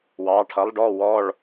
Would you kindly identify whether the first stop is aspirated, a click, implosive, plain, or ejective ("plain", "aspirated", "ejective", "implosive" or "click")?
aspirated